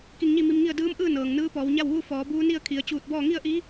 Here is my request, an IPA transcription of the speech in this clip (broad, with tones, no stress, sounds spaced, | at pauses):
k i˧ ŋ ɲ i˥˨ m i˧ m ŋ i˥˨ ə̯ d ɯː˧˥ m ʔ ɯː˥˨ n ɤː˩ ŋ n ɯː˧˥ p ɔː˩˧ w ɲ a˥˨ w ʋ u˥˨ f ɔː˩˧ b uː˧˥ n i˥˨ ə̯ kʰ i˩ ə̯ t͡ɕ uː˧˩ t̚ b ɔː˥˨ ŋ i˥˨ ə̯ ʔ i˧˥